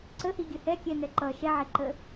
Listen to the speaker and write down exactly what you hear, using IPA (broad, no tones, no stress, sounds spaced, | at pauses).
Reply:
ǀ ə h i ɡʲ ə h ɛ kʲ ɛ n ɛ ǃ ʌ ʃ ɛ ʕ ɛ ǃ ə